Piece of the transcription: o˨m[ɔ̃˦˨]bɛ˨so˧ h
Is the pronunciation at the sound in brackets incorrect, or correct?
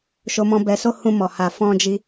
incorrect